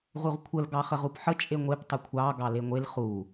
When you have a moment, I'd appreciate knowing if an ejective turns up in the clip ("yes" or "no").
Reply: yes